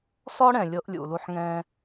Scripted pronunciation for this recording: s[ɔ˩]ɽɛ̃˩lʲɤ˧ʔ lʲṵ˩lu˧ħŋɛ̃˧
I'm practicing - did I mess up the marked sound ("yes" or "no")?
yes